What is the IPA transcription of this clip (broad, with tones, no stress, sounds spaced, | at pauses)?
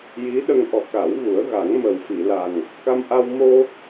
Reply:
j i˧˥ ɗ ə˧ ŋ ʔ ɔ˨˩ k a˨˩˦ w ɣ u˨˩˦ ə̯ ɣ a˨˩˦ ŋ m ə˨˩ w f i˨˩˨ l a˨˩ ŋ | k a˧ m ʔ a˧ w m o˧